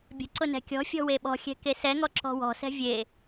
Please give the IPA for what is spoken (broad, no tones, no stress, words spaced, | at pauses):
bʲə̤ǀʊ nɛ̤kʲɔ̤fʲɔ̤ weɓɔ̤xʲɛ̤ kesɛŋɔ ǁɔ̤wɔ̤sɛ̤ vʲe